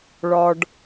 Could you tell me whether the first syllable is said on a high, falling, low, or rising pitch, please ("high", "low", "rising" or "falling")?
low